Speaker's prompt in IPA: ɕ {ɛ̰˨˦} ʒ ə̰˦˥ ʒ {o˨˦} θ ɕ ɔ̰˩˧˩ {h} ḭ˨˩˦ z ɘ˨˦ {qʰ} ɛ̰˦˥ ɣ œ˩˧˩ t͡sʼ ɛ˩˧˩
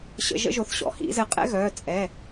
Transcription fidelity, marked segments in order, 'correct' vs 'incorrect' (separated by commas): incorrect, correct, correct, incorrect